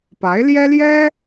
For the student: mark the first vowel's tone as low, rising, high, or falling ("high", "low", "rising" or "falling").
rising